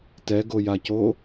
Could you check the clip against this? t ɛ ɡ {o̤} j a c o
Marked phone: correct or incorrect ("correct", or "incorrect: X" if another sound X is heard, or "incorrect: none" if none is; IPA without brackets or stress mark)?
incorrect: o